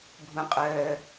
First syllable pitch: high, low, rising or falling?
low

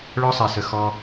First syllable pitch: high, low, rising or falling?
high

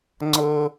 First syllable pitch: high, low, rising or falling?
high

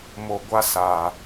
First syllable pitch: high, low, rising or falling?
low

